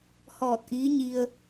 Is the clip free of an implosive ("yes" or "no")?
yes